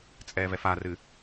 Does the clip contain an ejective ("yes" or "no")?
yes